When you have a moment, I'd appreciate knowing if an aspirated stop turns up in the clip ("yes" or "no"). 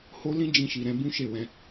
no